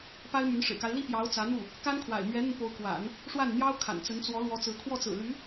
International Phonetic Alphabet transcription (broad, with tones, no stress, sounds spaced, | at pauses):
p a˥ ɪ̯ m y˧˥ n ʂ ɻ̩˨˩ k a˦ ɪ̯ l i˥ p j ɑ˧˥ ʊ̯ t͡s ä˧˥ n̪ u˥˩ | k a˥ n kʰ w a̰˨˩ ɪ̯ m ɥ ɛ˧˥ n̪ ə˧ n p o˧˥ ʊ̯ k w a̰˨˩˦ n | ʂ w a˥˩ n n̪ j ɑ˥ ʊ̯ kʰ a̰˨˩ n t͡s ə˧˥ n t͡s w ɔ˧˥ l w ɔ˧˥ t͡s ɹ̩˧˥ kʰ w ɔ˥˩ t͡s ɹ̩˨˩ l y˧˥